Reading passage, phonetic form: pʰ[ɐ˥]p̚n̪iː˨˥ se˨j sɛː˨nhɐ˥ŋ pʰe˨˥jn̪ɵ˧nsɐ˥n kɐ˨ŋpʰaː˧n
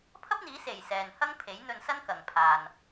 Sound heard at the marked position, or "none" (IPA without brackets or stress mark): ɐ˥